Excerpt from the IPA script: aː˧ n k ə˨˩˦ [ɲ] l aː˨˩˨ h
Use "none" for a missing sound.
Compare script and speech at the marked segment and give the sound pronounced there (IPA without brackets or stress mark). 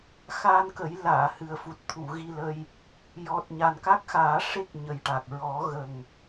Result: j